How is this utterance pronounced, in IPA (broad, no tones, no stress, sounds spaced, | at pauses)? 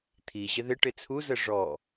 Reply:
t̪ʰ i ʑ ɪ ð ɪ ʈ ɪ t͡sʰ u z ə ʐ ɔ